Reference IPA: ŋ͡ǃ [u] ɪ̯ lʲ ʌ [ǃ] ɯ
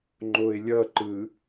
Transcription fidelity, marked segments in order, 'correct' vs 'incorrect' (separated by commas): incorrect, correct